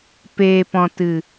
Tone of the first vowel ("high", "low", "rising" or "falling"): low